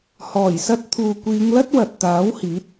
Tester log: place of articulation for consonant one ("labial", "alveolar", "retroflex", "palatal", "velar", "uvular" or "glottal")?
glottal